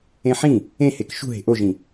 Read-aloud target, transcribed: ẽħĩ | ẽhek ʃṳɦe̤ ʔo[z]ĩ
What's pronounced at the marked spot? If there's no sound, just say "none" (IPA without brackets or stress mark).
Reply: ʒ